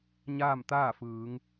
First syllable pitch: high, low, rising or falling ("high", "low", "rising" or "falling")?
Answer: falling